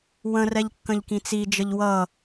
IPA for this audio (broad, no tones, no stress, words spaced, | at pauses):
wə̃rɛʎ kːə̃ʎkĩt͡sid͡ʒəʎ wʌ